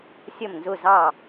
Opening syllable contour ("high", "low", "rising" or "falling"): falling